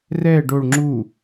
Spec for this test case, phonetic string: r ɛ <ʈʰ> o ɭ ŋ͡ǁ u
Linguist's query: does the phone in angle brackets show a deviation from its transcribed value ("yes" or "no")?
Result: yes